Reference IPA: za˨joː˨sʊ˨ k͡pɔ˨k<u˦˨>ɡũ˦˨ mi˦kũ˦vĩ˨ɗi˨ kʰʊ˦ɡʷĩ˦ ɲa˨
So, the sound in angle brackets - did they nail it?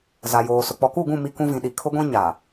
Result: yes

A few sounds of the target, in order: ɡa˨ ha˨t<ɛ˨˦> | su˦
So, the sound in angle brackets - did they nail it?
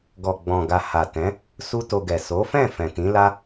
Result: no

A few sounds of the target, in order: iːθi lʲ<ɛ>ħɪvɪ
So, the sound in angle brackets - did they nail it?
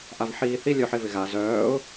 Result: no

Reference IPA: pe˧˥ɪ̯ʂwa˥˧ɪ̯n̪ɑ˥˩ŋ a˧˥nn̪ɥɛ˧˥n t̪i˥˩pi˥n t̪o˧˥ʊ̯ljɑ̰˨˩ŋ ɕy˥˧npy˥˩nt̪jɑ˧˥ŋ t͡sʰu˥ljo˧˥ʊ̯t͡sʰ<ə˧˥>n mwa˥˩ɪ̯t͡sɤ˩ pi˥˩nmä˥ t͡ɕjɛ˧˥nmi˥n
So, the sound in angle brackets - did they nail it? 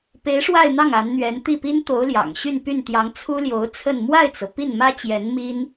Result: no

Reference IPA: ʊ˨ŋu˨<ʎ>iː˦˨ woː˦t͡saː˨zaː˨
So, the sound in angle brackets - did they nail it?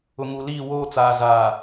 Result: no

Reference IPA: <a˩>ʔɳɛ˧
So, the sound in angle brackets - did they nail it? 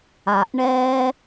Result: yes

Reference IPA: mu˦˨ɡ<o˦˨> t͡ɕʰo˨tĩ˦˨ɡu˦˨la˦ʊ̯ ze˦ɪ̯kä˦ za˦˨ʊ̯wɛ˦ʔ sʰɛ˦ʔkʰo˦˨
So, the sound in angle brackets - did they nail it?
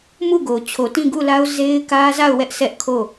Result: no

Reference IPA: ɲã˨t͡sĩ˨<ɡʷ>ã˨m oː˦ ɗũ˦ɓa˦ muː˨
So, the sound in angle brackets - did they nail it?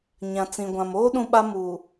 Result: yes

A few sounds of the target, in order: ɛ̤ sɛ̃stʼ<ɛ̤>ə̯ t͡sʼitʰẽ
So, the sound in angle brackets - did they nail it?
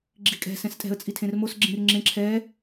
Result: yes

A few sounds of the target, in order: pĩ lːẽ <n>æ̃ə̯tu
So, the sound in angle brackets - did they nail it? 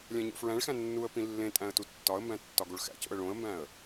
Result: no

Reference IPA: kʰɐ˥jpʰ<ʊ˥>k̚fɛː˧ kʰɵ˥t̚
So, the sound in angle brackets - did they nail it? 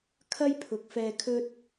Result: no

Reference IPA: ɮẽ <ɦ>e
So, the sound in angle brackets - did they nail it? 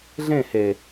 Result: no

